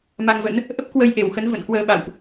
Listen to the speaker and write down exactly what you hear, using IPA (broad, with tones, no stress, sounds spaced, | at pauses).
m a˧ ŋ v ə̰˧˥ n | ʔ ə˦˥ p̚ k w ə˧ j ʔ e˧˩ w x ə˨˦ n v ə̰˧˨ n k w əː˧ ɓ a̰˧˨ w ʔ